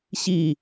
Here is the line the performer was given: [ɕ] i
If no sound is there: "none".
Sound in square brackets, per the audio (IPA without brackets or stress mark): ɕ